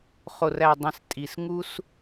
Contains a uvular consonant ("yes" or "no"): yes